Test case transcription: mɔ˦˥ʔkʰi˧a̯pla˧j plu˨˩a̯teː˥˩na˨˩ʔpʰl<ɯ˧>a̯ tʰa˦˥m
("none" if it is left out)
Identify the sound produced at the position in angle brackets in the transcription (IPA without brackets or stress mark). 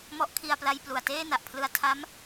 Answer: ɯ˧